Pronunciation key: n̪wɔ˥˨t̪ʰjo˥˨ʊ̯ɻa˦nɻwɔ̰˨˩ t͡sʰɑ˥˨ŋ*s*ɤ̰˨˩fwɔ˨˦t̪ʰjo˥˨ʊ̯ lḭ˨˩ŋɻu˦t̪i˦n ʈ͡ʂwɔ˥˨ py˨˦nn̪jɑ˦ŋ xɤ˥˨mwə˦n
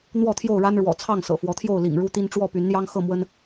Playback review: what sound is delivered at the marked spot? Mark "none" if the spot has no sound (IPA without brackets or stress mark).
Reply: s